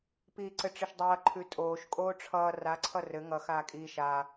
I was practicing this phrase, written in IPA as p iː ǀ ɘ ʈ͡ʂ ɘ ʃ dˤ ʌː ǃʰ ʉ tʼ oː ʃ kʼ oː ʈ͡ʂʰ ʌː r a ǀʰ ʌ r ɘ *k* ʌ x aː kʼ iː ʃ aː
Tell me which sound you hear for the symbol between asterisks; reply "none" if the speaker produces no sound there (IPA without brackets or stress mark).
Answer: ŋ